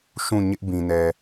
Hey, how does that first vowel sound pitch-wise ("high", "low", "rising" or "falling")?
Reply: falling